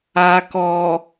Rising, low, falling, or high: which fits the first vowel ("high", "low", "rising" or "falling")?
low